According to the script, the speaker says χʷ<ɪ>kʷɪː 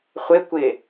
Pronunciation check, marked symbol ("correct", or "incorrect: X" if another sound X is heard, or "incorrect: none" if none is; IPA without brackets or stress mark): correct